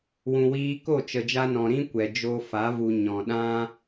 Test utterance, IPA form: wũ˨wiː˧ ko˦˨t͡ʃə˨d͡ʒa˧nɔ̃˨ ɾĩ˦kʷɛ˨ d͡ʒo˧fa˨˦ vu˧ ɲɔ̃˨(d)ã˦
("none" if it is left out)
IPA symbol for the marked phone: ɗ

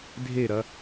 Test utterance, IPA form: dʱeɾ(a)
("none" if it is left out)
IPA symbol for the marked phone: ɐ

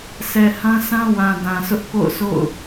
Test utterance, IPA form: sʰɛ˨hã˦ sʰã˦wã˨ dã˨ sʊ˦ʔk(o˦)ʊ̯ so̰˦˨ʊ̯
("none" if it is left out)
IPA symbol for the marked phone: o̰˦˨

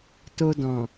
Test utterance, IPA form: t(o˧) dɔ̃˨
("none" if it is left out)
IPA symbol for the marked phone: o˧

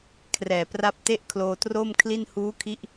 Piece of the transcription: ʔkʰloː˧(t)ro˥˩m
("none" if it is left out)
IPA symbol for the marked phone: t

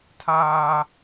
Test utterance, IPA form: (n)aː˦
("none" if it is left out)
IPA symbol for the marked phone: tʰ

